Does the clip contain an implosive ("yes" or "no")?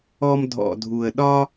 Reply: yes